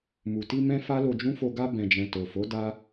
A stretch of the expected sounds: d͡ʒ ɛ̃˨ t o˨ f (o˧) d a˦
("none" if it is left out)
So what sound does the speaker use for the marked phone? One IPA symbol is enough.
o˨˦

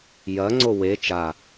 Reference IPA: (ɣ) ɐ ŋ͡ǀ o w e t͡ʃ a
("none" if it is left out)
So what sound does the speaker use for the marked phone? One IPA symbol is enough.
j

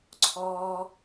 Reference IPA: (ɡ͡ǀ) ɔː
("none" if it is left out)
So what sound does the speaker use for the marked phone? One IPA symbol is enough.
ǀʰ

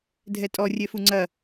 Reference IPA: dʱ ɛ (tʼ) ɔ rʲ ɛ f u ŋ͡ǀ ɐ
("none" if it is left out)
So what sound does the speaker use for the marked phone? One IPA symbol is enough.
tʼ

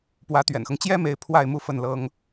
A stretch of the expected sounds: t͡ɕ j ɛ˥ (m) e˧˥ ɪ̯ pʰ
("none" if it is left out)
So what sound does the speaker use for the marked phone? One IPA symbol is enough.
m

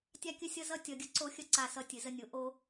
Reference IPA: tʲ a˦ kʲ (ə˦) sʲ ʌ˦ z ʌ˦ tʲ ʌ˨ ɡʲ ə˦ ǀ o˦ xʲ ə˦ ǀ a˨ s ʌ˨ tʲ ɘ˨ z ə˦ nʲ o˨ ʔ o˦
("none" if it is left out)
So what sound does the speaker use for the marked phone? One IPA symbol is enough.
ə˦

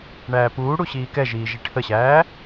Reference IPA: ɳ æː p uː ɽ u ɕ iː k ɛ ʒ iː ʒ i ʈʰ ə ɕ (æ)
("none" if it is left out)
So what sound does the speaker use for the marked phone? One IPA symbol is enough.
æː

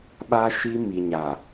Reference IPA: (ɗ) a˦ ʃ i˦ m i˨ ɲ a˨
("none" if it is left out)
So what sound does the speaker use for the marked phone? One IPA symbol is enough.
ɓ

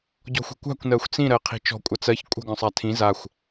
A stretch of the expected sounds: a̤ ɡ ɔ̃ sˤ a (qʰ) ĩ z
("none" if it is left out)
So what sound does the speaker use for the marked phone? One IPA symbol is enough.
tʰ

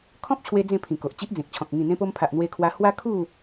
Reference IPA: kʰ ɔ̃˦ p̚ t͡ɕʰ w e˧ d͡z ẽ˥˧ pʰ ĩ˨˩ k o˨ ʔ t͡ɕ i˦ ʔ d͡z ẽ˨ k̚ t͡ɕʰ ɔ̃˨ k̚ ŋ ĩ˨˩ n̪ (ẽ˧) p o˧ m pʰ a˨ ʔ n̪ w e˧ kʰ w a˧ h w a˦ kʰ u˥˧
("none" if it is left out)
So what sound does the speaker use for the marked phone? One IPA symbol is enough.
ẽ˧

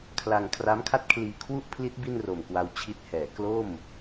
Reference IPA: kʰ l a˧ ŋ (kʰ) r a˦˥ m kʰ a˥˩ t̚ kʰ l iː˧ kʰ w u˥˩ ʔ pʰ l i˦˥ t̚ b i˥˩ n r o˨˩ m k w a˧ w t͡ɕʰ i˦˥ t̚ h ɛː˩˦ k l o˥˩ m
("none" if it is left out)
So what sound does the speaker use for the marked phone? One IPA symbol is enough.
kʰ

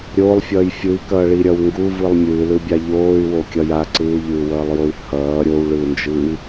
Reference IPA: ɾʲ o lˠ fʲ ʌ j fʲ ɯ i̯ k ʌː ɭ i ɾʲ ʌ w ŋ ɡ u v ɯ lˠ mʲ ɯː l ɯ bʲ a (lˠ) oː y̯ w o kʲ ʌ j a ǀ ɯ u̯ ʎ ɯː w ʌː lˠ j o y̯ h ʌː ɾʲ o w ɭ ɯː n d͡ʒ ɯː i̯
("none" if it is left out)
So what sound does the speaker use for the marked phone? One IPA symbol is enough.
ʎ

